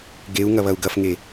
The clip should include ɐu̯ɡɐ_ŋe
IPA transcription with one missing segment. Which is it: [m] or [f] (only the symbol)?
f